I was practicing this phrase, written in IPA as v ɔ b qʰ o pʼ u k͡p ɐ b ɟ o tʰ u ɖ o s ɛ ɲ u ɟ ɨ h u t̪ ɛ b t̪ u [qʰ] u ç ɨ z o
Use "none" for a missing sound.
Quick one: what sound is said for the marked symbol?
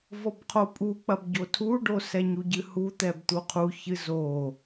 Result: qʰ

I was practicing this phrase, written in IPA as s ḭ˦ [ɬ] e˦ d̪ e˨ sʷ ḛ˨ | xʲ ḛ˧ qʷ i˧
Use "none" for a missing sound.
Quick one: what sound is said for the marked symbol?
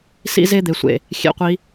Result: z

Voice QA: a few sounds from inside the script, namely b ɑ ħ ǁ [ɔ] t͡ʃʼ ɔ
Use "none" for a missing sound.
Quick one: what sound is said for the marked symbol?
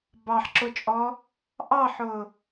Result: ʊ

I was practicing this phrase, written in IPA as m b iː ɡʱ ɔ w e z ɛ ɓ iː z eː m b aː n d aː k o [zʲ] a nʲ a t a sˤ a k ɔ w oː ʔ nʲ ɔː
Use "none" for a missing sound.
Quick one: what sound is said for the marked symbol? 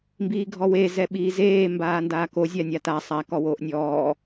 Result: zʲ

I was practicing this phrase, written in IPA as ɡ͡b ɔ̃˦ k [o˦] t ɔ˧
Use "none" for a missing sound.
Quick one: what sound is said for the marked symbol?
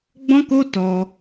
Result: o˦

